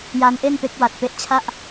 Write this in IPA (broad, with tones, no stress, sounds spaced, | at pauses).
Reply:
j a˦˥ n ʔ e˥˩ n p e˦˥ k̚ w a˨˩ t̚ p e˦˥ ʔ t͡ɕʰ a˥˩ ʔ